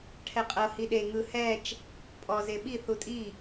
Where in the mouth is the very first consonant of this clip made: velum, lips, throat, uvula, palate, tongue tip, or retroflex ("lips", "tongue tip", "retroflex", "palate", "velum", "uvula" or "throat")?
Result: retroflex